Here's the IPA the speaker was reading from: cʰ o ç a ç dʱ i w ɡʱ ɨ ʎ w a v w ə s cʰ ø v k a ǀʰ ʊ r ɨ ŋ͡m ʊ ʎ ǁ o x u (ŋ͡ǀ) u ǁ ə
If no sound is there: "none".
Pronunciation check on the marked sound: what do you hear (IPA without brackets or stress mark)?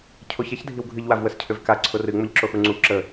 ŋ͡ǀ